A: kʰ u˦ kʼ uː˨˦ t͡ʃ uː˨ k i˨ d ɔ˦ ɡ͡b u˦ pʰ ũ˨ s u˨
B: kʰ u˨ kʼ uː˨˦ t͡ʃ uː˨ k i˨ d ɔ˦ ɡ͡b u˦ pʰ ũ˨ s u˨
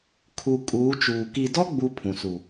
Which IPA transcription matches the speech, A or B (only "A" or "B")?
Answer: B